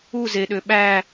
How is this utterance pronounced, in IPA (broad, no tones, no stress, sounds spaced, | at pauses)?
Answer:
u z e ɗ ø ɓ æ